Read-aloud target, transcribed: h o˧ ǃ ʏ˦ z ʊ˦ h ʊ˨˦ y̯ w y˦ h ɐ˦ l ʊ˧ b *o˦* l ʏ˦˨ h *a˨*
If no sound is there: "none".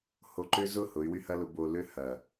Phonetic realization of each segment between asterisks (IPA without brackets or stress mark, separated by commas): o˧, ɐ˨